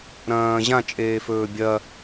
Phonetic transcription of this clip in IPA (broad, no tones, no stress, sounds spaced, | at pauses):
ɾ ɐ̃ː ʑ ã t͡ʃʼ eː f ɵː bʲ ɐ